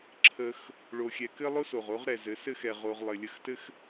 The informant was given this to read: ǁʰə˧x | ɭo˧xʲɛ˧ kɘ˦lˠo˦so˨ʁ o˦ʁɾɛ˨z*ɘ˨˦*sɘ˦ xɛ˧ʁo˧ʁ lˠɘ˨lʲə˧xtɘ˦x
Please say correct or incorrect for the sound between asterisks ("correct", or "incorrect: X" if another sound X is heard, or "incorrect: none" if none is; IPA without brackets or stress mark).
correct